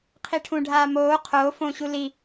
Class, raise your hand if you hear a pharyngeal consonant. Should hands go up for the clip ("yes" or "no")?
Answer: no